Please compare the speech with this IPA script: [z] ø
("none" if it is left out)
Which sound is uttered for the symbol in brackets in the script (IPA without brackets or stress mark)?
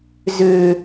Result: z